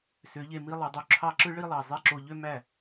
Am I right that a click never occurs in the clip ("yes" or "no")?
no